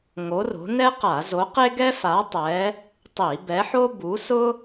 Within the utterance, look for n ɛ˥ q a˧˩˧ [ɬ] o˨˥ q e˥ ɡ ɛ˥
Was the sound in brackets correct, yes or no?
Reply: no